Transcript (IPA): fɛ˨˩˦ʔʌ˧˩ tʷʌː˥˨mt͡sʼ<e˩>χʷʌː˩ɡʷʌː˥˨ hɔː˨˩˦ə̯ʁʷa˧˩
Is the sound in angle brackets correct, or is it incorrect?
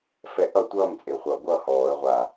correct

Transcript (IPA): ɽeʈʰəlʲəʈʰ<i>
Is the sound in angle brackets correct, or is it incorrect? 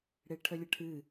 incorrect: ɨ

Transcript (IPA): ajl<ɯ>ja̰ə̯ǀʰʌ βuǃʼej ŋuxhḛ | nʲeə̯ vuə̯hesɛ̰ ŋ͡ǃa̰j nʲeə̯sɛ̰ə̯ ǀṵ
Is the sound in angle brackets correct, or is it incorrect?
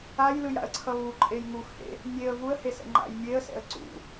correct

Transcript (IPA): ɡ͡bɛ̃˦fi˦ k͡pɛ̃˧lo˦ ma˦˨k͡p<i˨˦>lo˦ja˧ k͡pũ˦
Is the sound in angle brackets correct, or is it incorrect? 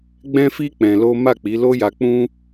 correct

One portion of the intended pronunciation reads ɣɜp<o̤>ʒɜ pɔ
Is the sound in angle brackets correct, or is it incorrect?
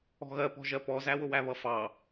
incorrect: ɔ̤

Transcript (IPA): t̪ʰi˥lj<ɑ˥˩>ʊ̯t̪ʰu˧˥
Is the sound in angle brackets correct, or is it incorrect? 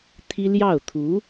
correct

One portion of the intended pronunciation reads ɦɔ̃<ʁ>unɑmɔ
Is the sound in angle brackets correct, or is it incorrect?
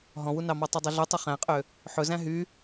incorrect: w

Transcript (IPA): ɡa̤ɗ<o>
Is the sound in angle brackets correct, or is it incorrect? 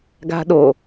correct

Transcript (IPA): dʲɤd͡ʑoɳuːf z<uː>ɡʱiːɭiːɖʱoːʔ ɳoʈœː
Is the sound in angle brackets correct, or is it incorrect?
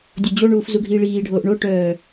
incorrect: u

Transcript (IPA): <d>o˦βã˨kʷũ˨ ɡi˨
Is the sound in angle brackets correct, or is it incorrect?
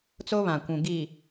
incorrect: t͡s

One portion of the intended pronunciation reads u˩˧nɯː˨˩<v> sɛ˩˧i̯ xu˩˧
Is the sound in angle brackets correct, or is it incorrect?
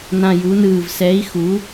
correct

